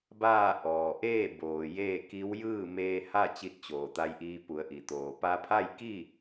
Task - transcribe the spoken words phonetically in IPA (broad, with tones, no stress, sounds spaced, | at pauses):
b aː˥˨ ʔ ɔː˩ ʔ eː˥˨ b oː˩ j eː˥˨ k i˧˥ w j ɯː˥˨ m eː˧ h a˥˨ t͡ɕ i˧ t̚ t͡ɕ oː˩ t̪ a˧ j ʔ iː˧ p u˩˧ ə̯ ʔ i˩ t̪ oː˩ p a˧ pʰ a˥˨ j k i˥˨